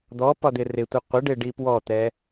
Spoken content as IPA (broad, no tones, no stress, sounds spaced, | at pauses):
d̪ ɔ p ɒ d̪ ɪ r ɪ tʷ ɛ qʷ ɪ ɖ ɪ ɖ i p w ɔ t̪ ɛ